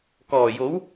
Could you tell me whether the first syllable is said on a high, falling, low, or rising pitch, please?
low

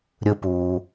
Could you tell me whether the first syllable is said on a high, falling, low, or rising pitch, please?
low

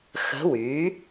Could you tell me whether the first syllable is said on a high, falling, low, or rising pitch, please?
rising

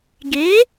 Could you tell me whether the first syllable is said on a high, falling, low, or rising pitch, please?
rising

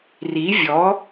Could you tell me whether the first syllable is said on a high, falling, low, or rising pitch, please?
rising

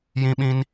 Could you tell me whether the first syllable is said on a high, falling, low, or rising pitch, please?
high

